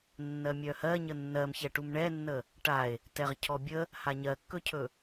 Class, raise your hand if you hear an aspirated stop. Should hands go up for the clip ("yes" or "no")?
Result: yes